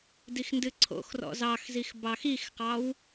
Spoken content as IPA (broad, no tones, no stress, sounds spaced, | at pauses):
d i x n d ɨ ǀʰ o̰ x r ɔ̰ z ɑ x z i x b ɑ x i x q ɑ w